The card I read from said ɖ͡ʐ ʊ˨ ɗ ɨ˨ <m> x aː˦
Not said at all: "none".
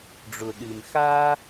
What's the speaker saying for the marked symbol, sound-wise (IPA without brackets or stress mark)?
m